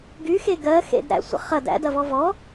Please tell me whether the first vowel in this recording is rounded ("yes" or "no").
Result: yes